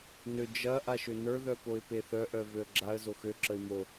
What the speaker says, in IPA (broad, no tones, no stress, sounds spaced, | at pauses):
n ø d͡ʒ ɐ ʔ a ʃ ø n ə˞ ð œ p o ɪ̯ p e θ œ ʔ œ v ø ə̯ ɡ͡ǁ a ə̯ z o x ø ǁ ə ɪ̯ m o